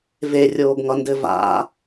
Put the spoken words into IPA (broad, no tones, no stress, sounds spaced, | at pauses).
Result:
v e rʲ oː ɡ ŋ ʌ n d ɘ v a̰